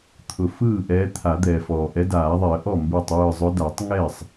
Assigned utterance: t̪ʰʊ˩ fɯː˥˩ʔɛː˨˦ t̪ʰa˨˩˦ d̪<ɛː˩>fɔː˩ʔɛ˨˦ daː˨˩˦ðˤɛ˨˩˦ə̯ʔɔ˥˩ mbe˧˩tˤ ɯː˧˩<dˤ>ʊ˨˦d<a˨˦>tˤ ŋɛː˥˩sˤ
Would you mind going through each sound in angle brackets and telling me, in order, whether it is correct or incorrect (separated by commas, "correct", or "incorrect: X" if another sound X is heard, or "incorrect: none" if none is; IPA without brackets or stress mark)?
correct, incorrect: zˤ, incorrect: a˨˩˦